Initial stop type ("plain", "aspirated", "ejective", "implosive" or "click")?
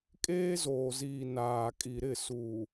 ejective